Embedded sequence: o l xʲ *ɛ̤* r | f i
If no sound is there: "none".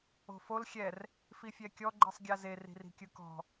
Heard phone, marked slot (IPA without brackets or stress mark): ɛ